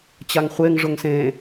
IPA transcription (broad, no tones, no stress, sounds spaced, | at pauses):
t͡ɕ a ŋ χʷ e ŋ ʐ ʊ ŋ s ẽ